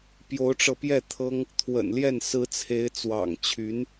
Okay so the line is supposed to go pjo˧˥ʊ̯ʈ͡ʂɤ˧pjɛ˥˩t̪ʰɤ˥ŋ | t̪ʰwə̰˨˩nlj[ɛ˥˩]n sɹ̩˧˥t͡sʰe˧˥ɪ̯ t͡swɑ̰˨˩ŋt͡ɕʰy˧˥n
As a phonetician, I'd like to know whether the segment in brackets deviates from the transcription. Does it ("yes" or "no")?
no